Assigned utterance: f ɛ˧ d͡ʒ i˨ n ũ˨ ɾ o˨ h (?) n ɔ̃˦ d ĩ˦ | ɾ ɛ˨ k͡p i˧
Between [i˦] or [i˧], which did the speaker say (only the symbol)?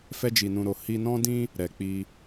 i˧